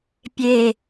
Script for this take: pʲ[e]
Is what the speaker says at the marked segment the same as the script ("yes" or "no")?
yes